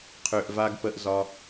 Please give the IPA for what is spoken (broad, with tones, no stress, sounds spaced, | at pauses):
qʰ ø˨ ʔ v a˧ ɡ p ə˧ ʔ z ɒ˧